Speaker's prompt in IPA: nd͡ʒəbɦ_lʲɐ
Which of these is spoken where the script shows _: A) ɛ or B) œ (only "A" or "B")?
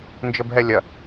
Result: A